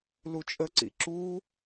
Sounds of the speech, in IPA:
l u t͡ʃʼ ə ǀ ḭ ǁ u

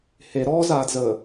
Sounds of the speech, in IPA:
h e ɾ ɔː z aː d z əː

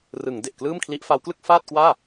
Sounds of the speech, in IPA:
r ɯ˩˦ ŋ d e˨˩ ʔ k l ɯː˥˩ m kʰ l i˦˥ ʔ f a˦˥ w k l ɯ˥˩ k̚ f aː˥˩ t̚ k w aː˥˩

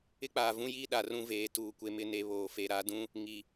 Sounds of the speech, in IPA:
ɪ˦ k͡p aː˨ v ũ˦ j iː˦ ɗ a˨ r ũ˦ v eː˨ t uː˨ kʷ e˨ m ɪ˦˨ n e˨ β oː˨ f e˨ ɾ a˨˦ d ũ˦ | ŋ i˨

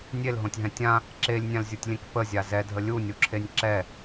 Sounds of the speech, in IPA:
nʲ e l ɦ õ tʲ ɦ ɛ̃ tʲ ã | ǁ e lʲ nʲ ã l zʲ u tʲ lʲ ẽ k p ə zʲ a z ɛ dʱ ə lʲ u nʲ u ǁʰ e nʲ ǁ ɛ

